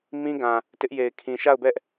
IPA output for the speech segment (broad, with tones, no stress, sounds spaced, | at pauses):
m ĩ˦ ɡ ã˨ | t ɪ˦ ʔ j e˨ ɪ̯ kʰ ĩ˨ ʃ a˦˨ ʊ̯ b ɛ˦ ʔ